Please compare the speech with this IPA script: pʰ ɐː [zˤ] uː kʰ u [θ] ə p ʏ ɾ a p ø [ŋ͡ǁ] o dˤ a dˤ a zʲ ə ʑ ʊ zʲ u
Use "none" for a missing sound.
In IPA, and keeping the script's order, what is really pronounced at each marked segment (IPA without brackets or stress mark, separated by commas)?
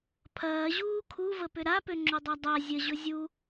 ʑ, v, ŋ͡ǁ